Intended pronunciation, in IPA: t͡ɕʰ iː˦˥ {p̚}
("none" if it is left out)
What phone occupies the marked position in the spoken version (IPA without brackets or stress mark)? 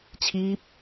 p̚